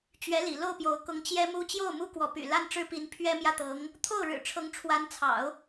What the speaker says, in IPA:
t͡ɕɥɛ˧˥ lḭ˨˩lo˥˩ʊ̯pjo˧˥ʊ̯ kʊ˧˥ŋ t͡ɕjɛ˥mu˥ t͡ɕjo˥˩ʊ̯mu˥ kwɔ˧˥py̰˨˩ la˥nʈ͡ʂɻ̩˥pi˧˥n pʰɥɛ˥mjä˥˩t̪ɤ˧˥ŋ | t̪ʰo˥˩ʊ̯ɻɻ̩˨˩ʈ͡ʂʰɤ˧˥ŋ ʈ͡ʂʰwa˧˥nt͡sʰɑ̰˨˩˦ʊ̯

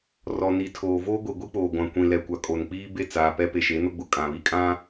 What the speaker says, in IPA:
rɔ˨ni˨tʰoː˨ voː˦ɡʷi˨ɡʷi˦k͡poː˨ ɡʷã˨kʷĩ˨lɛ˨kʷa˨ kʼo˨nk͡piː˦ be˦˨ t͡saː˨pɛ˦ pe˨ʃe˨˦no˦ɡ͡bʊ˨ kʼã˨βi˦kʼã˦

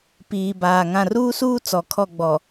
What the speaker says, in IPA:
piː˨baː˨ ŋã˨ruː˦suː˦ t͡sɔ˨kʰɔ˦˨ɡ͡bɔ˨

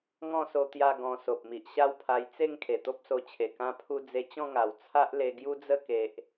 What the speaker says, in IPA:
ŋɔ̃˥˧so˧ t̪ja˥˧ɡɔ̃˧ so˨p̚mi˨ʔɕa˥˧wpʰa˧j t͡se˥˧ŋ kʰe˨˩t̪o˦p̚so˧t͡ɕʰe˨˩ kã˧pʰu˧ d͡ze˧t͡ɕɔ̃˥˧ŋa˨˩w t͡sʰa˦ʔle˧ ɡju˦d͡zə˥˧ke˨ʔ

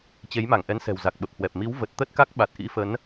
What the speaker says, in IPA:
t͡ɕe˨˦jma˧˩ŋʔɛ˨˦n sɛ̤˨˩wza˨˩k̚ ɓə˨˩p̚hwɛ˨˩p̚ mi˨˦wvə˨˩t̚t̪ə˦˥t̚ ka˦˥k̚ɓa˨˩t̚ʔḭ˧˥ fə˨˦n

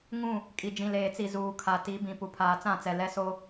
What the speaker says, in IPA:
ŋũ˦˨ | kʼi˨ d͡ʒĩ˨leː˨t͡si˨ zuː˨ kʰa˨ti˨˦bĩ˨ pu˨pʰaː˨t͡sã˦˨t͡sɛ˨ lɛ˦so˦

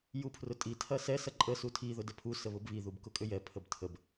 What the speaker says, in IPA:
jupʰrʊtʼi tʰɐsɛ sɐǃʼə sutʰi ðʊdəpʰu səβʊbβi ðubkʊkʼʏjɛ pʰəbtʰəb

